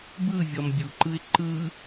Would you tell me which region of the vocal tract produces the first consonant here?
lips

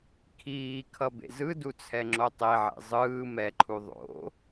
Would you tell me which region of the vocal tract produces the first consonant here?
velum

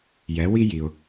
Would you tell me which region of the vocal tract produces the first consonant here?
palate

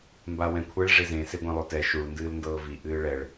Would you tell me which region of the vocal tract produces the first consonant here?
lips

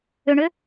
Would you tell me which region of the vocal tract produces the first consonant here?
retroflex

